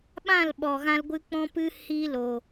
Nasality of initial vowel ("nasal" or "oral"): nasal